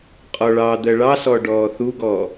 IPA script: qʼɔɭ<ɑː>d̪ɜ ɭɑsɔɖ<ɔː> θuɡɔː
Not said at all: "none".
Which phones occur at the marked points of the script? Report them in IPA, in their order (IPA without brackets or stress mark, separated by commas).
ɑː, ɔː